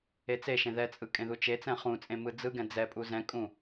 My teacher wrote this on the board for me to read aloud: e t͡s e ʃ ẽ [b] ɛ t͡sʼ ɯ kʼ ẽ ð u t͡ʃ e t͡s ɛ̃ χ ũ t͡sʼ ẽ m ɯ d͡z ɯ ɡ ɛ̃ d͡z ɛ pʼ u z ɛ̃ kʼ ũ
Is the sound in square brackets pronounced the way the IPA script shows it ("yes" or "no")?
no